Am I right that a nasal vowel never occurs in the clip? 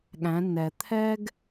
no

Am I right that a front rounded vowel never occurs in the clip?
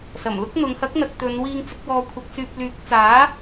no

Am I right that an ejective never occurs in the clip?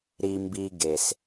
yes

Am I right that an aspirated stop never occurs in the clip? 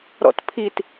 no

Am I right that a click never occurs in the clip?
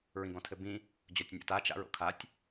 yes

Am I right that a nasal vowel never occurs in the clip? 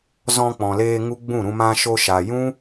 no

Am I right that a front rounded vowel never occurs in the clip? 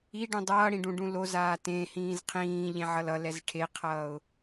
yes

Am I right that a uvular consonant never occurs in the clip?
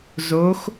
yes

